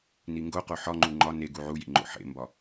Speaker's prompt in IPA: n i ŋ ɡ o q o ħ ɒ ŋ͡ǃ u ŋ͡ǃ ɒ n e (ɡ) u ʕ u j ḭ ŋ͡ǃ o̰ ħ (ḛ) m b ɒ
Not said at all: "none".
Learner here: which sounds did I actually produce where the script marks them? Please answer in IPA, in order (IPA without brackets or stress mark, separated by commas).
ɡ, ḛ